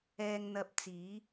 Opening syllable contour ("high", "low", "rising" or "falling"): low